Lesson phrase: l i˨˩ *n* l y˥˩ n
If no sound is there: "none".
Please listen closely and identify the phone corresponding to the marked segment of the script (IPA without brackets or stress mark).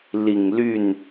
ŋ